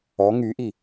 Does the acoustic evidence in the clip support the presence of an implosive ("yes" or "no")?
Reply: no